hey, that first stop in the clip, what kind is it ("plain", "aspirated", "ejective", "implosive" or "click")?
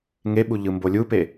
implosive